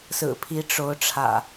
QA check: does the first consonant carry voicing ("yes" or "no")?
no